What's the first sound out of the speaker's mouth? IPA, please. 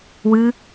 w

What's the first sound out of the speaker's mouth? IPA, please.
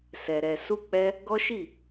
s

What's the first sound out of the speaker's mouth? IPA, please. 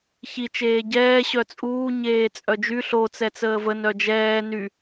ç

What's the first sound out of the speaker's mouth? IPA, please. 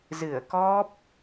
z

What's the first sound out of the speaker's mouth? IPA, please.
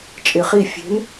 t͡ʃʼ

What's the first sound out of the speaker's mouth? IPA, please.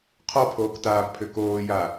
qʰ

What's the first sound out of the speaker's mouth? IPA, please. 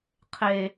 qʰ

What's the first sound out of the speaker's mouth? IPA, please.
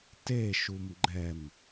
t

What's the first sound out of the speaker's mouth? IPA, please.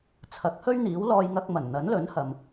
t͡sʰ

